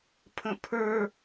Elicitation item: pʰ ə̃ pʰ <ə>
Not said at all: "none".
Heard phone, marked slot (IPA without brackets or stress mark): ə˞